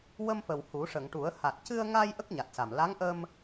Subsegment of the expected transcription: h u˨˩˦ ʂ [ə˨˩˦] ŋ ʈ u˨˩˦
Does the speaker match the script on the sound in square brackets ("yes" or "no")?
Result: no